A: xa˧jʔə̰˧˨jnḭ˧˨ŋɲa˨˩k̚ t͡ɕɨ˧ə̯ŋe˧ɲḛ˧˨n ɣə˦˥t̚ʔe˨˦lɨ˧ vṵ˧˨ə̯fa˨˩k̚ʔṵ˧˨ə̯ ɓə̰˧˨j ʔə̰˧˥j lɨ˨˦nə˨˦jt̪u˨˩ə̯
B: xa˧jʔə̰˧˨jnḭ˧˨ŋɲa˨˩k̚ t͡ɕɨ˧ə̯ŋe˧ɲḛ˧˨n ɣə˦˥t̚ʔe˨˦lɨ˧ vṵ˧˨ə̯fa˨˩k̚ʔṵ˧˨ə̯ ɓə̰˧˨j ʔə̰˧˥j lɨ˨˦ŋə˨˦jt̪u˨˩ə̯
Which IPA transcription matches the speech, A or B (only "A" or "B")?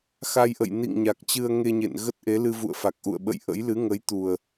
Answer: B